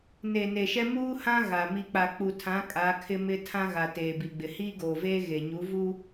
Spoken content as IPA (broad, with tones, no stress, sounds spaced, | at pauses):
n e˨ n e˨ ʃ ɛ˦ m uː˦ h ã˦ ɣ a˨ m i˨ k͡p a˨ k͡p u˨ tʰ ã˨˦ kʼ a˨˦ kʰ ɪ˦ m ɪ˦ tʰ ã˦ ɣ a˨ t eː˨ b i˨ ɡ͡b ɪ˨ h iː˦ ɡ oː˨ v eː˦ ɣ e˨ ɲ u˨˦ v u˦